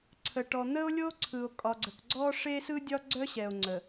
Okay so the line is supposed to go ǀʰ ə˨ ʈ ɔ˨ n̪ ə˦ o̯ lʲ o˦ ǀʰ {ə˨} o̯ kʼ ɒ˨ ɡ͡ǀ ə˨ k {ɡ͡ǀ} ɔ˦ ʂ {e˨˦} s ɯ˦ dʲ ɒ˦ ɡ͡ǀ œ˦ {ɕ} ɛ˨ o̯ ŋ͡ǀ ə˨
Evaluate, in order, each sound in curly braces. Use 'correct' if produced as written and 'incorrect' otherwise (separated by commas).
incorrect, correct, incorrect, correct